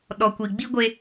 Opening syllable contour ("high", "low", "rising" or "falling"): low